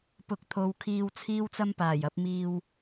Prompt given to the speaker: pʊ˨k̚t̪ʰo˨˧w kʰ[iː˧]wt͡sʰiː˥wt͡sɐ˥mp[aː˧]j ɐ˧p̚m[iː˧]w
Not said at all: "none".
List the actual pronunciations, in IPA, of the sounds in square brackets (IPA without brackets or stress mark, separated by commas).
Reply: iː˧, aː˨˩, iː˧